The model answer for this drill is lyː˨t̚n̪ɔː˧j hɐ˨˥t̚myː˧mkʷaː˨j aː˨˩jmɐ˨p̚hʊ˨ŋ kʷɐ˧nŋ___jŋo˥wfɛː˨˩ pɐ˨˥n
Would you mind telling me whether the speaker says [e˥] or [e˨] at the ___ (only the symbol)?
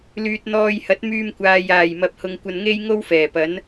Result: e˥